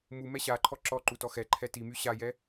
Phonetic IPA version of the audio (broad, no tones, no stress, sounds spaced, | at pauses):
m u m ɛ ɕ a ǃʰ ɔ ǁ ɔ ǃ u t ɔ x ɛ ǃʰ ɛ t i m y ɕ a j ɛ